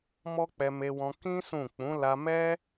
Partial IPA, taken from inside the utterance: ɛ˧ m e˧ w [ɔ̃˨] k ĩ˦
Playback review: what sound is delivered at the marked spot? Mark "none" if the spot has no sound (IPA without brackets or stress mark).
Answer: ɔ̃˧